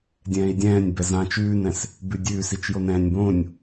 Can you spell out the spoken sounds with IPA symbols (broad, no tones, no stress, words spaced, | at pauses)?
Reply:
dʲɛ̃ːi̯dʲɛ̃ːnʲbɛ zãːt͡ʃʉːnɛ̃s | bʉdʲʉːs it͡ʃjonɛ̃ːnʲbõnʲ